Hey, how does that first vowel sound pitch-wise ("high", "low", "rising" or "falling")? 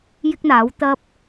high